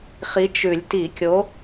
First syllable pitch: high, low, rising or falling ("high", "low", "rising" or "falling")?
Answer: rising